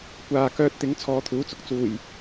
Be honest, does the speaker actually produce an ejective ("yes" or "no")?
no